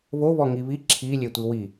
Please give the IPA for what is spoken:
βoβɔ ŋiβi ǁʰilʲetʷi wi

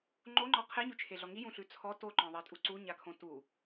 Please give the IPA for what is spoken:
ŋ͡ǃoŋ͡ǃɔ qʰeɲʉt͡ʃʰeɮɔ ŋijũɬʉ t͡sʰɔ toǃɔ̃ðˤetʼu ǀuɲakʰõ tu

